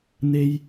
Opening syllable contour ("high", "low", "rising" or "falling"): high